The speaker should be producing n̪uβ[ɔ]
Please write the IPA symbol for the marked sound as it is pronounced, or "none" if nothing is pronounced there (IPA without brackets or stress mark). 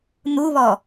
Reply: ɔ